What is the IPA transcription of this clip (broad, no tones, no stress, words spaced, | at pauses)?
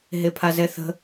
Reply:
ɦepʰazɛθə̤